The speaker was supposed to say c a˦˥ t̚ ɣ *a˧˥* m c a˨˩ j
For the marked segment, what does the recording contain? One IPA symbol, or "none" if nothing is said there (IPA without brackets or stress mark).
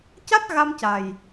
a˧